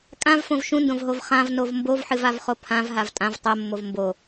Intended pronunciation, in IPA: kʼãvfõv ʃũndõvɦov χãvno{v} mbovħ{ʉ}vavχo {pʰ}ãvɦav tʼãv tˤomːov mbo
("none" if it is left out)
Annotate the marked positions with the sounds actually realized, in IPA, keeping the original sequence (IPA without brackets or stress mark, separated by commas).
v, ɨ, pʰ